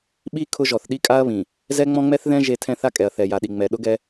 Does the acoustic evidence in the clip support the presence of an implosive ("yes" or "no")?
yes